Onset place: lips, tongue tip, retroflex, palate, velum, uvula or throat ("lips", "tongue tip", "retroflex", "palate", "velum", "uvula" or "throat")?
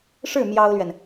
retroflex